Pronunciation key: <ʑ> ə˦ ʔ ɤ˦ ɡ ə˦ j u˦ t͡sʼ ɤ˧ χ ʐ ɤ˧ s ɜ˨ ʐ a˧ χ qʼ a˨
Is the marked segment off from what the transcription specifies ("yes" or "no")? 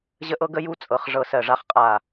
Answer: no